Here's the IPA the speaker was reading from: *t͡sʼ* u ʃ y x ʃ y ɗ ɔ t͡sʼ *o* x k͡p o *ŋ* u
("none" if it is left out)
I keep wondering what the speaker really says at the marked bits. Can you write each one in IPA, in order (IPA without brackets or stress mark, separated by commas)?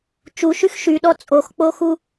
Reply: t͡ʃ, o, x